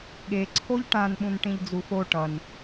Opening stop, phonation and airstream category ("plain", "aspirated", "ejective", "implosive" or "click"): implosive